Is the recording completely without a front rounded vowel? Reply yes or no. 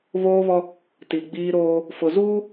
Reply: yes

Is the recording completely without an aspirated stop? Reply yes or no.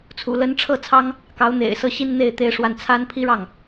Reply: no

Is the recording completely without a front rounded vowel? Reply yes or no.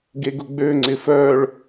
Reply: no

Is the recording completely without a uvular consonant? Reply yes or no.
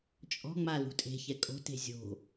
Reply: yes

